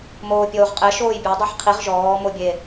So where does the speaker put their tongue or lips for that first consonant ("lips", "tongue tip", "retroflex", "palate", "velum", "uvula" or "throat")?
lips